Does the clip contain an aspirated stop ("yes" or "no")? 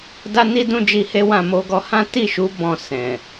no